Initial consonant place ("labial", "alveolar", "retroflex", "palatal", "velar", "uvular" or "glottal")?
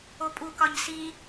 labial